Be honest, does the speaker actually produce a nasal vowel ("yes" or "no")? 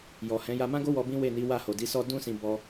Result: yes